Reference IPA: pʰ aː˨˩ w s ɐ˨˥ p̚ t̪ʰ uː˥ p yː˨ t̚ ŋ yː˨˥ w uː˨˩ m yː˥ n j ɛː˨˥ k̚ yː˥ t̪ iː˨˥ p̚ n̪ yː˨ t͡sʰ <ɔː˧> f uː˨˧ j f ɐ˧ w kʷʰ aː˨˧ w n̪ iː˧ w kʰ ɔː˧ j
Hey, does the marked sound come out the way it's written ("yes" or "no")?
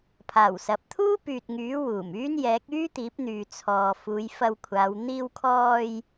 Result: no